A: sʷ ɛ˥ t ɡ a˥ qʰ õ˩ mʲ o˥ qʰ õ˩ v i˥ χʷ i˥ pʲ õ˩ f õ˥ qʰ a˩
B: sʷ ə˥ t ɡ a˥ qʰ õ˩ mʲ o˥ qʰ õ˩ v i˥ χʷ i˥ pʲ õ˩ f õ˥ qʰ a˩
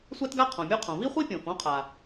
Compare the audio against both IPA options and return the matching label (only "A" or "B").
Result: A